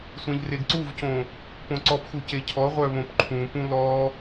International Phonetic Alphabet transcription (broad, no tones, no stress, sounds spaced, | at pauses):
sʷ ẽ ʎ r e ɡ ǀ u v c õ | p õ ǀ ɔ p x u c e cʰ ɔ ʁʷ œ β õ p ǃʰ ũ p ũ l ɔ